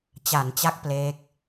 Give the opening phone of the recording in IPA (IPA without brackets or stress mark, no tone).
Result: t͡ɕ